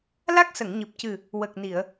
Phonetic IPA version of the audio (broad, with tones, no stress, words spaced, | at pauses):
la˦˥k̚sə˨˩˨ŋɲɨ˨˩p̚cɨ˨˩ | wə˨˩k̚ni˨˩˨ə̯